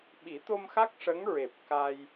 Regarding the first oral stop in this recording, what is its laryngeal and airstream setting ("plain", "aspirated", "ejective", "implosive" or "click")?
implosive